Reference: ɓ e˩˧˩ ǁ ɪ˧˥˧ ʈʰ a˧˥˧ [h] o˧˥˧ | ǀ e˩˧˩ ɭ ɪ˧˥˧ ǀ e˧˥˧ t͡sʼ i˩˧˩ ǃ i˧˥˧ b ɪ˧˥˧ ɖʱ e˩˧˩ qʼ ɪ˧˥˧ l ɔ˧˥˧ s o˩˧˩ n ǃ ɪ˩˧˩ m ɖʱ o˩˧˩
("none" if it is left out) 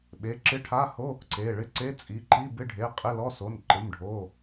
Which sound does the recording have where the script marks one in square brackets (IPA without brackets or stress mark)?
h